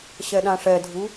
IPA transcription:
ɕ ɛ ɗ ã ʂ ɛ dʱ u

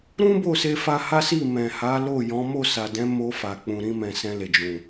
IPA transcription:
ɾ ũ˦ b o˦˨ s e˧ f a˧ h a˦ s i˦˨ m ɛ̃˨ h a˨˦ l o˦˨ j ɔ̃˨˦ m o˦˨ s a˨ d ɛ̃˨˦ m o˧ f a˨ k͡p ũ˨ ɾ ĩ˧ m ɛ̃˨ s ɛ̃˧ l e˨ d͡ʒ ũ˨

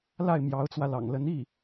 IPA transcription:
l a˥˩ ɪ̯ m j ɑ˧˥ ʊ̯ t͡s w ä˧ l ɑ̰˨˩ ŋ l ə˧˥ n i˥˩

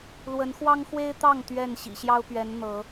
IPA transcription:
l w ə˨˦ n x w ɑ˦ ŋ x w e˦ ɪ̯ t̪ ɑ˥˨ ŋ t̪ ɥ ɛ˥˨ n ɕ ḭ˨˩ ɕ j ɑ˦ ʊ̯ p ɥ ɛ˨˦ n n̪ ɤ˨˦

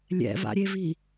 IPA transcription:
lʲ ɛ̰ v a̰ ɾʲ e v i

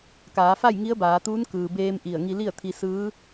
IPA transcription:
k aː˩˧ f a˥˨ j ŋ i˧˥ ə̯ b aː˩˧ t̪ uː˧˥ n k ɯː˩ b eː˧ m ʔ i˧˩ ə̯ ŋ i˧ l i˥˨ ə̯ t̪ʰ i˧ s ɯː˧˥

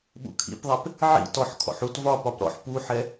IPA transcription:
ɓ ṵ kʰ ḭ p ðˤ ɛ p | ʕ ḭ t ɔ ħ kʰ ɔ̰ ħ u t v ɒ p ɒ p ɾ ɔ̰ ħ p u ħ ɛ

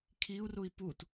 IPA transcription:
kʰ i u̯ r u i̯ p u t

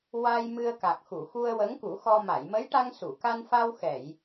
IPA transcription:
w a˧ j m ɨ˧ ə̯ k a˨˩ k̚ x u˨˩˨ x u˧ ə̯ w ə˧˥ ŋ k u˨˩˦ x ɔ˧ m a˨˩˨ j m ə˧˥ j ʈ a˧ ŋ s u˨˩˨ k a˧ n f a˧ w x ɛ˨˩˨ j

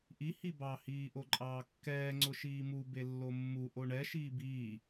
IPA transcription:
ʔ i h i b ɑ h iː ʔ o ǃʼ ɑː kː ɛː ŋ͡ǀ ʊ ʃ iː m u b e lː o mː u ʔ o ɳ ɛ ʃ iː b iː

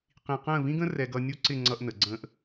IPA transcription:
q ĩ˧ q ə̃ː˥˧ v ĩ˥ ɡ ə̃˥ r ɛ˧ ɡ ʌ˧ nʲ u˥ ǀ ɪ˥˧ ŋ͡ǀ ʌ˧ ʔ n ə˩˧ ɡ͡ǀ ə̃ː˧ ʔ

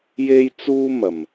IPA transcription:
j e˥ j t͡s uː˥ m ɐ˨˩ m

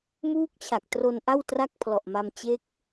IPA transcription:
m uː˦˥ k̚ t͡ɕʰ a˨˩ k̚ t r o˧ n ʔ a˥˩ w t r a˥˩ k̚ pʰ l ɔ˨˩ ʔ m a˧ m t͡ɕ e˦˥ k̚

